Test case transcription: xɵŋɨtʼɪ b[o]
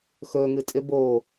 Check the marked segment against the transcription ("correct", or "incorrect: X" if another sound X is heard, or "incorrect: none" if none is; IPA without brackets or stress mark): correct